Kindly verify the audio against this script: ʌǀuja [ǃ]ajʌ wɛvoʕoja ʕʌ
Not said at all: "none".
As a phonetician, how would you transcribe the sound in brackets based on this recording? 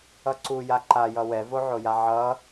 ǃ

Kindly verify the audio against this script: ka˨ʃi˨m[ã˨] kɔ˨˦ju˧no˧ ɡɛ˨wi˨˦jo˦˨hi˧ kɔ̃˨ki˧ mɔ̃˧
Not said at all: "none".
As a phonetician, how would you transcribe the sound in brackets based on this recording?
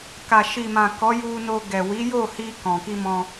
ã˨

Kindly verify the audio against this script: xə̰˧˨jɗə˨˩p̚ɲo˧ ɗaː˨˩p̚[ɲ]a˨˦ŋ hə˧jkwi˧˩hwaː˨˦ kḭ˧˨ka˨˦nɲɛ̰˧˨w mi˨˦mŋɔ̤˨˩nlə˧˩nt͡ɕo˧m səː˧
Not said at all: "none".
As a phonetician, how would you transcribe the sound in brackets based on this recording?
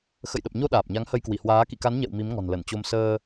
ɲ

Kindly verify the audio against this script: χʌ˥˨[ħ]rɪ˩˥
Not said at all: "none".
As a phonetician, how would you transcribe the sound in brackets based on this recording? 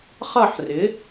ħ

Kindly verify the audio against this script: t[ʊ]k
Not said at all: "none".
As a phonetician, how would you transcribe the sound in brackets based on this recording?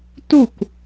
u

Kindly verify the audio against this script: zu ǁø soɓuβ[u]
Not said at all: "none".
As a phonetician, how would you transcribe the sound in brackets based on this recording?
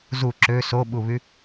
y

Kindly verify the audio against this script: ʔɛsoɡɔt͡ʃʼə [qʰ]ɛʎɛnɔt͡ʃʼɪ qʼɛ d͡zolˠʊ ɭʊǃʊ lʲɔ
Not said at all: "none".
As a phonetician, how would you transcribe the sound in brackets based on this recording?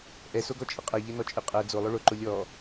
qʼ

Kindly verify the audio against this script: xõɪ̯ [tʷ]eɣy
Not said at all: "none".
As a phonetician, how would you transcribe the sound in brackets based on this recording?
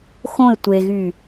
tʷ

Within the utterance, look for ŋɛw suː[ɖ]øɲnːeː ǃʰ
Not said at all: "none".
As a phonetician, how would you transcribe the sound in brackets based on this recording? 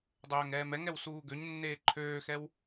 ɡ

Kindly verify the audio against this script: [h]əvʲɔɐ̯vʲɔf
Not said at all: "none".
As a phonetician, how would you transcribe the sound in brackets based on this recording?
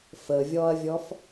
f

